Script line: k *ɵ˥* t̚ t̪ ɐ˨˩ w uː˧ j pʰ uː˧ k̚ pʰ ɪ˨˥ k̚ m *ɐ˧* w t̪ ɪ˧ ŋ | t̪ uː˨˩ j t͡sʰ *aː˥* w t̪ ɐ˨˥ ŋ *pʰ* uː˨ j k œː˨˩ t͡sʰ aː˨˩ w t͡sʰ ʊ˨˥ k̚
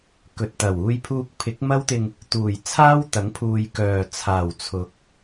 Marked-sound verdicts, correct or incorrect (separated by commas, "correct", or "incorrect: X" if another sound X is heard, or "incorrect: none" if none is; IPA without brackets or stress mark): incorrect: ɵ˨, incorrect: ɐ˥, correct, correct